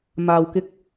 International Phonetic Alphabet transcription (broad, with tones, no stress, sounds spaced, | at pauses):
m aː˧ w k ɪ˧ k̚